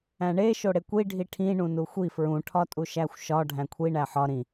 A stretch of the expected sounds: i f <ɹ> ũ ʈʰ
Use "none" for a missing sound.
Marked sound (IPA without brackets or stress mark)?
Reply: ɹ